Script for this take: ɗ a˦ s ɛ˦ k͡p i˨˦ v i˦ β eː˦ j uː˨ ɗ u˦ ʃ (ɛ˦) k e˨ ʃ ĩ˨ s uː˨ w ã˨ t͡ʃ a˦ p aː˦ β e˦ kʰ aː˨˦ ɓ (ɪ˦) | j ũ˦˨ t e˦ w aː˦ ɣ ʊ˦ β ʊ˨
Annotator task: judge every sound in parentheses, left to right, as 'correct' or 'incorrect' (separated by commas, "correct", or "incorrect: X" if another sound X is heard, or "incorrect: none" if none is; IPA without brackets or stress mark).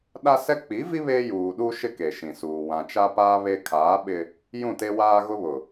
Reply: incorrect: ɪ˦, correct